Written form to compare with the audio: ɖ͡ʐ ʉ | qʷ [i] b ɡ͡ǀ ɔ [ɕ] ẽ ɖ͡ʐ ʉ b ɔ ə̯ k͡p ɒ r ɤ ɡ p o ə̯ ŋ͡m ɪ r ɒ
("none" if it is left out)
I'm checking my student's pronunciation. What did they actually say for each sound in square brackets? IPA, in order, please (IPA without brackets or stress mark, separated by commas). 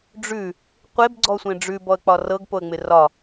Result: e, sʷ